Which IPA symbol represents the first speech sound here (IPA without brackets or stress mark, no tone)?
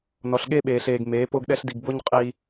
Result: n